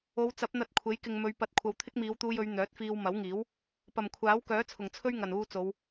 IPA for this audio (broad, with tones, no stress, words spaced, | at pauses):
o˨˧wt͡sɐ˨˥p̚n̪ɐ˧t̚ kʷʰe˨˥jkɪ˨ŋmɵ˨˧ɥ pɐ˨˥t̚kʷʰɐ˨w t̪ʰɪ˥k̚miː˨˧wt̪uː˧jɵ˨˧ɥ n̪œː˨˥t̚fiː˧wmɐ˨˥wŋiː˨˥w | pɐ˨˩mkʷʰaː˨˥w kœː˨˥t͡sʰʊ˨˩ŋt͡sʰɵ˥ɥŋɐ˨˩n uː˨ t͡so˨˧w